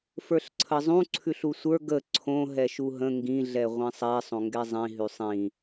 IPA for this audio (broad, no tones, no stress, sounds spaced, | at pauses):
f ə˞ ɬ ǀʰ ə zˤ ũ ǀʰ ʉ ɬ u sʷ ə˞ ɡ ə ǀʰ õ ɦ ɛ ʃ u ɦ ə̃ ŋ ɡ ĩ ɮ ɛ ʁʷ ĩ sˤ ɛ sˤ õ ŋ ɡ ɛ zˤ ĩ ɦ ʉ sˤ ĩ